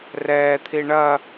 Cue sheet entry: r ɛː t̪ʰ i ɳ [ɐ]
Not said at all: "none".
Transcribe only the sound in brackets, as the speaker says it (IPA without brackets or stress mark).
ɐ